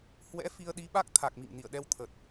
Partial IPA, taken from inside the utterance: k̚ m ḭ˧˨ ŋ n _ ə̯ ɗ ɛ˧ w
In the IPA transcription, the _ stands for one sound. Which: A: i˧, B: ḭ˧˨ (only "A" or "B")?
B